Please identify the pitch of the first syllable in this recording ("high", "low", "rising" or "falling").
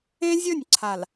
high